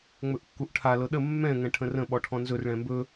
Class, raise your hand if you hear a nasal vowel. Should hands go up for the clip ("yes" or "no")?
yes